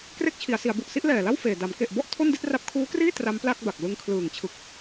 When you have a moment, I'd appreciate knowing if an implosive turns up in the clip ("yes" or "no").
no